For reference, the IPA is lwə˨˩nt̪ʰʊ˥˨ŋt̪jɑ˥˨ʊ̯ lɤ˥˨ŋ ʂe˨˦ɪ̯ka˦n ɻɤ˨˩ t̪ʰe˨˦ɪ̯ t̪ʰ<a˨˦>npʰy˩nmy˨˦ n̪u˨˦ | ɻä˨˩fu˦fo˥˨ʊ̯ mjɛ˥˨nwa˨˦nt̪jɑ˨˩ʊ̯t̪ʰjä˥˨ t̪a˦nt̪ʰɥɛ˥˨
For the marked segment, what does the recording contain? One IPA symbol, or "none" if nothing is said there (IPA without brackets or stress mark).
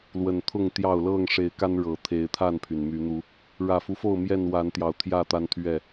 a˥˨